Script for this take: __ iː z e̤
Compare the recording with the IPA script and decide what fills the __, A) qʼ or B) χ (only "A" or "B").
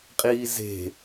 A